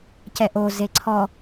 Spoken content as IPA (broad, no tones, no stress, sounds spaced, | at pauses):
c ɛ ʔ o z e ǀʰ ɔ